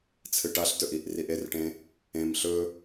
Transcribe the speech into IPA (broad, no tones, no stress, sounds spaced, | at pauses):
t͡sʰ ɨ ʈ a ɬ t ɵ ʔ i ʔ r i ʔ e r ʈ ẽ | ẽ m ɬ ɵ